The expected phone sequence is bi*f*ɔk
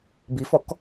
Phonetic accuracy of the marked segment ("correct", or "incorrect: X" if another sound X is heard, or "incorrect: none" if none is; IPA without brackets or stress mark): correct